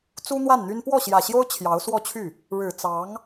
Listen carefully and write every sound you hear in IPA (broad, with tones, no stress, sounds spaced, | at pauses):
t͡s u˥ n̪ w a˥˩ n n̪ y˥ n p w ɔ˥˩ ɕ j ä˨˩ ɕ j o˥ ʊ̯ t͡ɕʰ j ɑ˧˥ ʊ̯ s w ɔ˥˧ t͡ɕʰ y˥˩ | ɻ ɻ̩˨˩ t͡s ɑ˧˥ ŋ